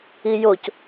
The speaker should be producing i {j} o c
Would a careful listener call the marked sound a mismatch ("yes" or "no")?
no